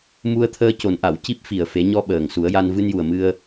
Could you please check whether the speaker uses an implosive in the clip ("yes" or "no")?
yes